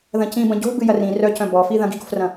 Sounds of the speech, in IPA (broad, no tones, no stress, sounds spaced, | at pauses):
ð ɐ̃ c ĩ b ɐ̃ ɟ o̤ b ɨ j ɐ r ĩ r œ c œ̃ b ɔ f i ð ɐ̃ ɡ i ɡ o̤ f r ɐ̃